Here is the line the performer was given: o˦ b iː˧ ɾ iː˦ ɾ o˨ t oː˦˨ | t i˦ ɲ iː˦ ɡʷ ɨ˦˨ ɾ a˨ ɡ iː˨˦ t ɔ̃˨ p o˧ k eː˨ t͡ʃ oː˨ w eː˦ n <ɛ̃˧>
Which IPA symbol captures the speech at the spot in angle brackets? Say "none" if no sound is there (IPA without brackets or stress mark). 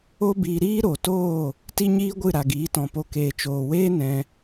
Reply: ɛ̃˧